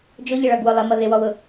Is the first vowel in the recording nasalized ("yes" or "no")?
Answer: no